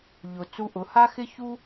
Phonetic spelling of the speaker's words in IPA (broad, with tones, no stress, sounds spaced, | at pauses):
ʎ ʊ˩ t͡s u˧ ʔ ʊ˩˧ h a˥ x ɪ˥ ç u˥